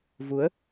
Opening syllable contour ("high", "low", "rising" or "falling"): rising